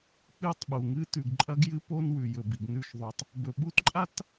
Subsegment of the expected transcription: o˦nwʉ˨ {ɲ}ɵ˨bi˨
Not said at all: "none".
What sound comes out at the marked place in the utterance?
j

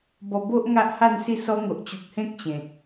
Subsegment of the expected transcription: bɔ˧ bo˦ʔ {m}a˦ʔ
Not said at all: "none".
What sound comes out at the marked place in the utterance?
ŋ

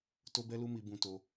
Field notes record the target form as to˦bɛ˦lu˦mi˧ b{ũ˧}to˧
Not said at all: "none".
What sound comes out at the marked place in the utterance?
ũ˧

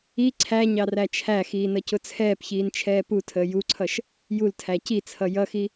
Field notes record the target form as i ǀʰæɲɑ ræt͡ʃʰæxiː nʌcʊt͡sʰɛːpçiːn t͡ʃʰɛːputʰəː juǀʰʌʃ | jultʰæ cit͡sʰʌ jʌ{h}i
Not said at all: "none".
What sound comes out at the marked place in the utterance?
x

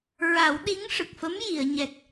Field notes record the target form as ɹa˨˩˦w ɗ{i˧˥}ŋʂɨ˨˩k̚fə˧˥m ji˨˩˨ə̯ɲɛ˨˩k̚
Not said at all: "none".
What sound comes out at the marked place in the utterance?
i˧˥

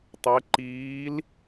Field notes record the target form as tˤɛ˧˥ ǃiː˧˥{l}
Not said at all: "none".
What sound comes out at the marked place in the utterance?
l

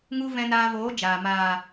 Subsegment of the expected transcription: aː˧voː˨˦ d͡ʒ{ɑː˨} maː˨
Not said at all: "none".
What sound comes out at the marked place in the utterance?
aː˨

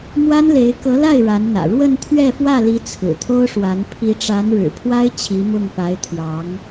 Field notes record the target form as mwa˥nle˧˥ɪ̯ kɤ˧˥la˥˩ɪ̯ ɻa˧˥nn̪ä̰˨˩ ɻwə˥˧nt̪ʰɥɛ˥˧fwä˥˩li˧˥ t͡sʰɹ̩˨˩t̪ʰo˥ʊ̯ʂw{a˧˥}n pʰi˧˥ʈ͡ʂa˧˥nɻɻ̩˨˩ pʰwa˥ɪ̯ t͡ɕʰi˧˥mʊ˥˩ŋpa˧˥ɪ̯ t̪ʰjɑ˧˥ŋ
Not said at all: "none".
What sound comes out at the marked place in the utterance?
a˧˥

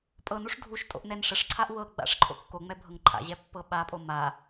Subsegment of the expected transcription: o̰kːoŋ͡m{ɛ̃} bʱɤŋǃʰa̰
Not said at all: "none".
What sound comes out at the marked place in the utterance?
ɛ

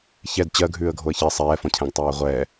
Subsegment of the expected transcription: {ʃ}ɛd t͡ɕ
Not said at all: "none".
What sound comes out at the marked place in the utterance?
ç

